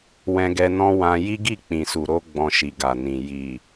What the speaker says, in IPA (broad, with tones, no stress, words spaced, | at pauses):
wɛ̃˧ɡɛ˧nɔ̃˦ wã˧ ji˦ɡi˦˨ k͡pĩ˨su˨ ɾo˧ ɡ͡bɔ̃˧ʃi˨ɡa˨nĩ˨ ji˨